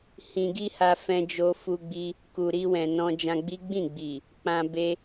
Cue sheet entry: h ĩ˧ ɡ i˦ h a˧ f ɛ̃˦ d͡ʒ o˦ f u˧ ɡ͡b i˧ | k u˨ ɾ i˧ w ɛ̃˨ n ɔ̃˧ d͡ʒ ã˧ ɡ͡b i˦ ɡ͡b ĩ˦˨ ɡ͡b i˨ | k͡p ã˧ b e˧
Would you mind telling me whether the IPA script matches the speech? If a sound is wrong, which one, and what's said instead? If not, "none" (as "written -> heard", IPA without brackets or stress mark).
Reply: none